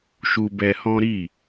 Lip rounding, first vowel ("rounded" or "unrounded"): rounded